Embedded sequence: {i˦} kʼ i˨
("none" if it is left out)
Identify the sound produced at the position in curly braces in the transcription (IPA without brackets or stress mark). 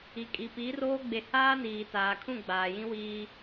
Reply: i˨